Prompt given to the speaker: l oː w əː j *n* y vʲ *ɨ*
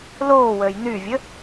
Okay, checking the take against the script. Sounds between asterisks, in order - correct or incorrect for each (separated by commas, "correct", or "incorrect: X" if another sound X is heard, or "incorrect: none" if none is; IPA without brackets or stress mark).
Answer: correct, incorrect: ə